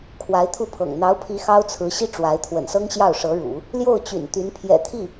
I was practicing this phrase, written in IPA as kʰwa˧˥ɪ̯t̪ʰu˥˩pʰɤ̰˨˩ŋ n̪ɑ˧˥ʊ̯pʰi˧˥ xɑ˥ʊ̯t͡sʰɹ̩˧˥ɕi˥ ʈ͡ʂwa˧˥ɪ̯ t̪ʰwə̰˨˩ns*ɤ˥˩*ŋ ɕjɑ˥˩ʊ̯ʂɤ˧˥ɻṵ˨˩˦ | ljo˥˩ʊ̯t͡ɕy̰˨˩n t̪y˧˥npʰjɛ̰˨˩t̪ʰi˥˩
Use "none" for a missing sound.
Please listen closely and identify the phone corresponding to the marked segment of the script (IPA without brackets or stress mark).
ɤ˥